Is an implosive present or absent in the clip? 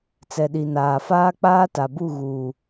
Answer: present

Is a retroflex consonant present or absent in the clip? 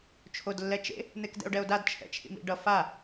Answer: present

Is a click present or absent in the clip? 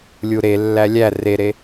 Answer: absent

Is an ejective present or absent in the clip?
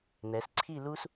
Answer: absent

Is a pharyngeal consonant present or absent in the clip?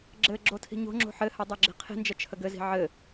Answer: present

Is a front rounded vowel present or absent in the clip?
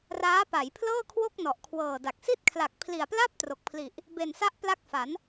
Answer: absent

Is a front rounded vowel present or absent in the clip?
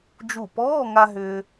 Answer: present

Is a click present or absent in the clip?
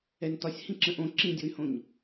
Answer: present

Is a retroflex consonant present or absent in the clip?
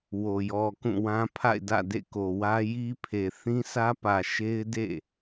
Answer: absent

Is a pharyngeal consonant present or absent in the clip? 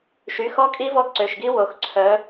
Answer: absent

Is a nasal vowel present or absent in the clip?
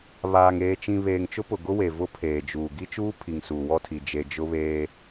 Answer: present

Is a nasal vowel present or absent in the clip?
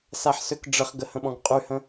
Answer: present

